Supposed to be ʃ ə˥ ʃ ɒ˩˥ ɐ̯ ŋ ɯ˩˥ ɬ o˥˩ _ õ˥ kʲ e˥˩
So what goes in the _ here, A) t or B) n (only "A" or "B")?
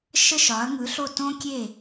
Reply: A